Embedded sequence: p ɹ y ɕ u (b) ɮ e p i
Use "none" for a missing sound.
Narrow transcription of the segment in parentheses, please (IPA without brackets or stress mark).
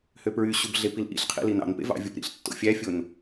b